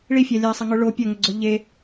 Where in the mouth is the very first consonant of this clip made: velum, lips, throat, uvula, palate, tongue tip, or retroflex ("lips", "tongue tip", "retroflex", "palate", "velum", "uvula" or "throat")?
retroflex